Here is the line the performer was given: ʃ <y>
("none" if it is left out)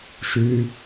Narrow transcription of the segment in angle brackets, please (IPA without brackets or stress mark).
y